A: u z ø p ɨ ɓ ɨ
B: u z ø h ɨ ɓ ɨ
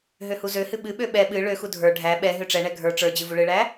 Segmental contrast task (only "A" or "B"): B